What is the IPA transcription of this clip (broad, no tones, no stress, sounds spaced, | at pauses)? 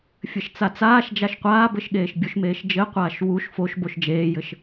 fʲ ɘ ʃ t͡s a t͡s aː ʃ d͡ʒ a ʃ qʷ aː b ɘ ʃ ɠ eː ʃ bʲ u ʃ m eː ʃ d͡ʒ ɘ qʷ aː ʃ w u ʃ f o ʃ b o ʃ d͡ʒ eː j ɘ ʃ